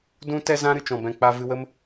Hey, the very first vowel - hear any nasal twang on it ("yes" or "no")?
yes